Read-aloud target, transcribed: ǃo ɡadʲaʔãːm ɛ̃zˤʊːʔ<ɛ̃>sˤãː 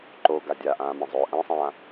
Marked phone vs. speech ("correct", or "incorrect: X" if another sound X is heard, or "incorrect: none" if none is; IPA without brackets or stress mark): correct